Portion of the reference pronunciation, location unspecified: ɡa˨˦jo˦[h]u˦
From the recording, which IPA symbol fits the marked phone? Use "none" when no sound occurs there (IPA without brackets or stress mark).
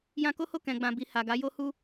h